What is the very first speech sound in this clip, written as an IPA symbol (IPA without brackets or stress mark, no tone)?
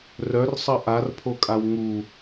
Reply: r